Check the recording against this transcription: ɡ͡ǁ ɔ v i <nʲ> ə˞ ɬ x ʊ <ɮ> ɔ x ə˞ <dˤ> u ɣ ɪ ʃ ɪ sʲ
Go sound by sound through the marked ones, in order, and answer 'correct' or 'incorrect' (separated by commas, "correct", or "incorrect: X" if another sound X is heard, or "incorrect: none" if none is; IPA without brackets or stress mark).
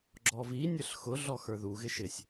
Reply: correct, correct, incorrect: ð